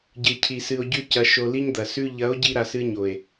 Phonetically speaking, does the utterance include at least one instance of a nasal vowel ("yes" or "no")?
no